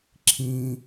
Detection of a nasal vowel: present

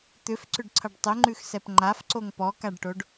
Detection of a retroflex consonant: present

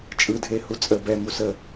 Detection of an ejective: present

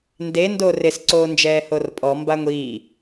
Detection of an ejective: present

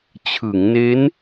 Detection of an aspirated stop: present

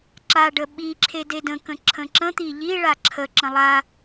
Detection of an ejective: absent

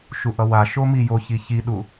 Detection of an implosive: present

